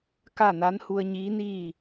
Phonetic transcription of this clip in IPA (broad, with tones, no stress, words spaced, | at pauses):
ka˥˨na˧˥n hu˧ə̯ɲiː˧˥niː˥˨